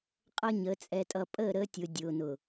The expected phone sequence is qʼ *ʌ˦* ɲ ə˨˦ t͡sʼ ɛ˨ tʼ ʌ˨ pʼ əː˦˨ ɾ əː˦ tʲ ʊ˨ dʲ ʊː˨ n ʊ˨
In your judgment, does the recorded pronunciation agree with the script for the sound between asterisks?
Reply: yes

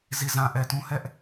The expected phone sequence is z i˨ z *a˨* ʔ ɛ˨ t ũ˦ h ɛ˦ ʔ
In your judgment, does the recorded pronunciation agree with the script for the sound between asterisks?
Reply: no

